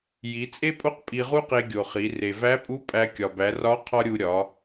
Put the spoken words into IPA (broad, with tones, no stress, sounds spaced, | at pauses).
j i˩˧ t͡sʼ e˥ pʼ o˥ q pʼ i˧ ʁ u˥ q e˧ ɡʲ o˩ χ i˩˧ r e˩ v æ˧˥ pʼ u˧˥ pʼ æ˧ kʲ ɒ˩ b æ˩˧ r ɒ˧˥ qʰ ɒ˥ ɾʲ u˧ ɾʲ ɒ˩˧